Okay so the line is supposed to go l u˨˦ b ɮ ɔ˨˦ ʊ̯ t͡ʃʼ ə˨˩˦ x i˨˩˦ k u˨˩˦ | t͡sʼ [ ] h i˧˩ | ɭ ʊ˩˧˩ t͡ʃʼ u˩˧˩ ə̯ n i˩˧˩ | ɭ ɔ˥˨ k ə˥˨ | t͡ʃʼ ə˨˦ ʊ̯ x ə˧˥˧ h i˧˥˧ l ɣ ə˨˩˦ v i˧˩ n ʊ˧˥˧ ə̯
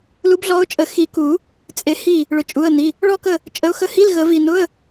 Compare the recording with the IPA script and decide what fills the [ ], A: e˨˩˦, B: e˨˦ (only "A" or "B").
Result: A